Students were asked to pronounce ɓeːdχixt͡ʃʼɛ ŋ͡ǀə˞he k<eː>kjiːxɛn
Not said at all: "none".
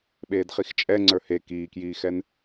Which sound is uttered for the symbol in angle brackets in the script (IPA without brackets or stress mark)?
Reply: iː